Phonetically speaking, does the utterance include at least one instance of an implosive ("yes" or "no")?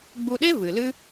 yes